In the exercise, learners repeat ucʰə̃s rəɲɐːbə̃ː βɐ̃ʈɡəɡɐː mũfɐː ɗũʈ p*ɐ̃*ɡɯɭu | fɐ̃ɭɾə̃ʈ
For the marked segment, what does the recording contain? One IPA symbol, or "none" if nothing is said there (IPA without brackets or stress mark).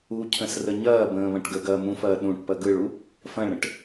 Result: ɐ